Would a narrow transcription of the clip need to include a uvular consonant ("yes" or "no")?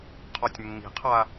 yes